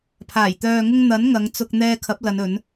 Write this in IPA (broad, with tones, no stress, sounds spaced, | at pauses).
pʰ aː˨˩ j t̪ œː˨ ŋ ʊ˧ ŋ n̪ ɐ˨˥ n ŋ ɐ˨˧ ŋ t͡s ʊ˧ k̚ n̪ ɛː˧ kʰ ɐ˨˥ p̚ l ɐ˨˧ n ɵ˨˧ n